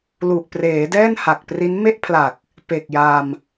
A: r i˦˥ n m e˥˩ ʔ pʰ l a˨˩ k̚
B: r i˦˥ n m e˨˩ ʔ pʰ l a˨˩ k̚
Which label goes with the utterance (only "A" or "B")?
A